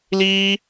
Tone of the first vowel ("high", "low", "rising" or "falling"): high